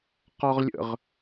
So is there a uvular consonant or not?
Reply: yes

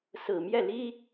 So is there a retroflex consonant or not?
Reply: no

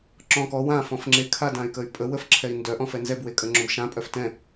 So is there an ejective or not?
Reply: yes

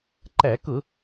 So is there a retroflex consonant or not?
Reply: no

